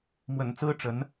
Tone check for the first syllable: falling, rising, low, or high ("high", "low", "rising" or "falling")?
low